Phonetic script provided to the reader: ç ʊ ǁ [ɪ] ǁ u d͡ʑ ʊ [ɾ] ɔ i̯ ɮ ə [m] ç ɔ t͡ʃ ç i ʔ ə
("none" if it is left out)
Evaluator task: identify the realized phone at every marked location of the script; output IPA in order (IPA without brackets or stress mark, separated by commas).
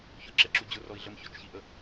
ɛ, r, m